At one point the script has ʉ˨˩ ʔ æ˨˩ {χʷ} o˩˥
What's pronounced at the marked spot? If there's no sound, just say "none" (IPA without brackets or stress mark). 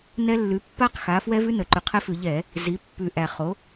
χ